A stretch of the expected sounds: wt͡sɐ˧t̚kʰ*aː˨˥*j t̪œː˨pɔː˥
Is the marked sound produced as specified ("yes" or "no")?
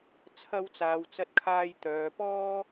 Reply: no